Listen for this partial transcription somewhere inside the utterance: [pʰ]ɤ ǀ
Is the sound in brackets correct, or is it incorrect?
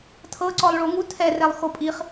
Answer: incorrect